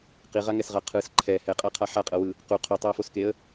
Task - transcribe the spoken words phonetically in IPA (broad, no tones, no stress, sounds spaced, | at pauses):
q i ʁ a ŋ ɛ s ʁ a qʰ ɯ s ǃʰ ɛ h ɛ qʼ a qʰ a ħ a qʼ ɤ w ɯ | q u qʰ u tˤ o ə̯ f o s k e ə̯